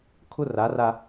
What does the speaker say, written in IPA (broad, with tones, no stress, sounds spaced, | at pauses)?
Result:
kʰ ʊ˦ r a˨˦ r a˦